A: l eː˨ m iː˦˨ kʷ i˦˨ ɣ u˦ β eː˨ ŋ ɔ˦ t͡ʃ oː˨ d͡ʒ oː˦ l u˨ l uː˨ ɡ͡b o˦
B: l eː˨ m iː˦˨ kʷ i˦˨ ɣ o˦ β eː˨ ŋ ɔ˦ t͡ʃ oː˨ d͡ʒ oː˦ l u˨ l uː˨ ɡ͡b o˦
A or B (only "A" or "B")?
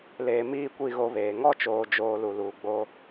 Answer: B